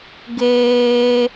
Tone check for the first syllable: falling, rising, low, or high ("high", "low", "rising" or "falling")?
high